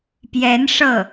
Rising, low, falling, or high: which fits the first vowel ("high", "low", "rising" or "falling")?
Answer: rising